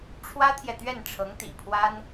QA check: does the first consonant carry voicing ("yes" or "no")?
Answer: no